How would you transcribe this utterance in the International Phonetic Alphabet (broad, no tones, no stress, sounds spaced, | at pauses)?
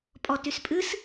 pʼ ɔ t y s pʼ ɨ s